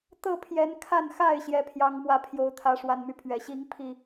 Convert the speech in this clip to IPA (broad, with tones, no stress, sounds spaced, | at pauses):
t̪ ɤ˥˨ pʰ j ɛ˨˦ n kʰ a˥˨ n x a˥˨ ɪ̯ ɕ j ɛ˨˦ pʰ j ɑ˨˦ ŋ m w ä˨˦ pʰ j o˨˦ ʊ̯ t̪ʰ ä˨˦ ʂ w a˨˩ n m y˦ pʰ ɥ ɛ˨˩ ɕ i˦ ŋ pʰ i˥˨